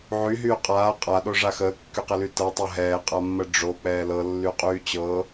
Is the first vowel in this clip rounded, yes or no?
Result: yes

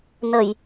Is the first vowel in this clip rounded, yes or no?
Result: no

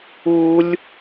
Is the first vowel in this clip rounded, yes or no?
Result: yes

